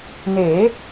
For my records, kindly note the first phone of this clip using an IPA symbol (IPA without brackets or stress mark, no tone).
n